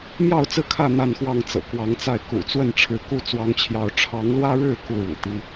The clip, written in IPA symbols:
mjɑ˥˨ʊ̯t͡sɹ̩˥˨kʰä˥˨ n̪a˥˨nxwɑ˥˨ŋ t͡sɤ̰˨˩kwɑ˨˦ŋt͡sa˥˨ɪ̯ kṵ˨˩t͡swə˥˨n ʈ͡ʂʰɻ̩˨˦ku˥˨ t͡swɑ˦ŋt͡ɕʰjɑ˦ʊ̯ ʈ͡ʂʰɑ˨˦ŋlwä˦ɻɻ̩˥˨ ku˥˨ɻṵ˨˩t̪i˦

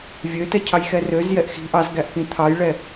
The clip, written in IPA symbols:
vʲøtɛ cʰɑjxɛrøzjɛʔ xi̤ ʔɑz ɡæʔkĩt̪ʰɑjɭɛ

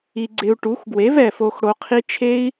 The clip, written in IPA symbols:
i˧ɡ͡ǀɪ˧u̯ ʈu˨˦xɡwe˨˦vɛ˨fo˧x ɽo˧qʰi˦ t͡ʃʰe˦i̯

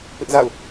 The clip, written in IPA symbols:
pɪ˦ʔza̰˦˨ʊ̯

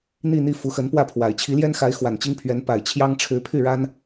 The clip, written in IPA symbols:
n̪i˥˧n̪i˥˩ fu˧˥xə˧˥npwä˥˩pʰwa˨˩ɪ̯ t͡ɕʰi˧˥ljɛ˥nxa˧˥ɪ̯ xwa˨˩nt͡ɕi˥ŋpʰɥɛ˧˥n pa˨˩ɪ̯t͡ɕʰjɑ˥ŋ ʈ͡ʂʰɻ̩˧˥pʰy˥˩ɻa˥n

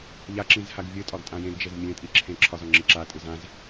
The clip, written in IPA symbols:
ʎaǁĩzhaɡ vʲɨtʼɒɡtʼã jẽɡd͡ʒez mʲẽtʼiǁʰẽ ǁʰɒzɒŋ͡ǁɨ ǁatʼɨz ãz

